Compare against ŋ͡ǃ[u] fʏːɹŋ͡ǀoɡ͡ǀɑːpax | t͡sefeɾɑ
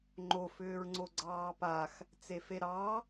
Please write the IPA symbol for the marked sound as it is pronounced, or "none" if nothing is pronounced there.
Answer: o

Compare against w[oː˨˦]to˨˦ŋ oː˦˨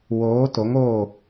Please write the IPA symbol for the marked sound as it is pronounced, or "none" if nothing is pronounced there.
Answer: oː˨˦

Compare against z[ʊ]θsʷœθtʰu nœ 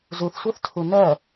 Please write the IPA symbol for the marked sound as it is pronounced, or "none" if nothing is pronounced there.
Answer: u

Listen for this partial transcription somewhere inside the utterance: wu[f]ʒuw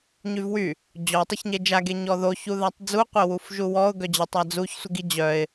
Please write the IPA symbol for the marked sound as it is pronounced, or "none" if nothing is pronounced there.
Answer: f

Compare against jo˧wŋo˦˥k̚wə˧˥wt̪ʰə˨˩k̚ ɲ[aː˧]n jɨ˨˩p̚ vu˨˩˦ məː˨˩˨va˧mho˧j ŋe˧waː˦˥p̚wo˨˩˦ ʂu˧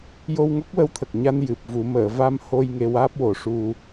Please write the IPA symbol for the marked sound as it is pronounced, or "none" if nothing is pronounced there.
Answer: a˧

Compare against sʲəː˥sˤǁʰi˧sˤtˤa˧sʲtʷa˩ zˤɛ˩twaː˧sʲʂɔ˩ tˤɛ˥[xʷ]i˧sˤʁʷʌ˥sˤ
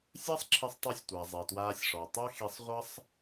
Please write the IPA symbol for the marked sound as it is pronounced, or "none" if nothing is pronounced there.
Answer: x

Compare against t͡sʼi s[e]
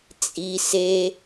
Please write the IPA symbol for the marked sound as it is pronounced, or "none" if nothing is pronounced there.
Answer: e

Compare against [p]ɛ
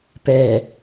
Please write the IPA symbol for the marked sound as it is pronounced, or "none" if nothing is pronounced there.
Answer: p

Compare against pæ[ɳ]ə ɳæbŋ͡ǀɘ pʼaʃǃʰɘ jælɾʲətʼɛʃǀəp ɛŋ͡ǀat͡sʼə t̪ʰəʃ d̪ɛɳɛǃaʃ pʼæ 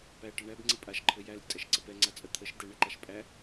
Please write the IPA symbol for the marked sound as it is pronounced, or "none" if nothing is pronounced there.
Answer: ʈ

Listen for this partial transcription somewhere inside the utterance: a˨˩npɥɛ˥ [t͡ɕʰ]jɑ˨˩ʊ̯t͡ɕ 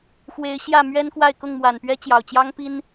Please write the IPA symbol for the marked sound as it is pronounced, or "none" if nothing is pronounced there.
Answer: t͡ɕ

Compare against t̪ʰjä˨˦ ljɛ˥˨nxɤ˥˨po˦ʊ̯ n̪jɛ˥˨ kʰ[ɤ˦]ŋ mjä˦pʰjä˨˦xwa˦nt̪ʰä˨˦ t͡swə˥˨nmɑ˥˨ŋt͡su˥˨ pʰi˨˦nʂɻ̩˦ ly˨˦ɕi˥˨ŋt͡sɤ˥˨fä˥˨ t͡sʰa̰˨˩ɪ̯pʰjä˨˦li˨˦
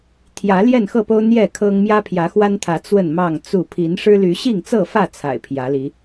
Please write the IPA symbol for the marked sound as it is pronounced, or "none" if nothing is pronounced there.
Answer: ɤ˦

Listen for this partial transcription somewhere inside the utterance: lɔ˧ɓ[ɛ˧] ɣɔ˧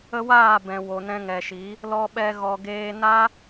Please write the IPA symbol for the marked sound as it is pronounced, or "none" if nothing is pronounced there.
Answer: ɛ˧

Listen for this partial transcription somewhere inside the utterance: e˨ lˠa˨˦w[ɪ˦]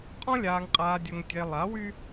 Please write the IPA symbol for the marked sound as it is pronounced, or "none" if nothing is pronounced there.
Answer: y˦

